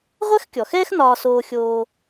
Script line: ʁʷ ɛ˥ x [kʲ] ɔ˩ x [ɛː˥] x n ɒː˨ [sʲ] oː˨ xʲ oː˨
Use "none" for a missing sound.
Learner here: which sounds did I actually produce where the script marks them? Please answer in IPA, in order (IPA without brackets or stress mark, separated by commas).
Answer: kʲ, ɛː˥, s